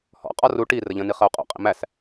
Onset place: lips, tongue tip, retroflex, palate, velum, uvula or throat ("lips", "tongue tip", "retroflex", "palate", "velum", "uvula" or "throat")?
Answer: throat